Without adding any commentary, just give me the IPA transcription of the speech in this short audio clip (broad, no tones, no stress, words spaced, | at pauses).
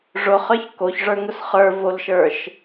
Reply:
ʐʊχə˞ç koçʐə˞ŋʊs χə˞volʃə˞ʃ